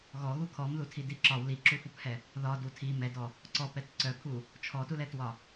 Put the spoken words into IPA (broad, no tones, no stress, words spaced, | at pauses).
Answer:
ɣɔɣu kʰɔmðutʰidi ǁɒw liǁufuphɛ | ðɒdu tʰi mɛdɔ | ǀɔpɛt ǀœpʰu | t͡ʃʰɔtulɛtwɒ